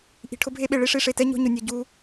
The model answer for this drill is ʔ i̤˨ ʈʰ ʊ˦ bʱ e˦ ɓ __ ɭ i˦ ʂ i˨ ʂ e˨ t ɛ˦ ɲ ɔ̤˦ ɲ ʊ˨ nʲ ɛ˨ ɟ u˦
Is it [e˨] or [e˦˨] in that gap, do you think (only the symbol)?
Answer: e˨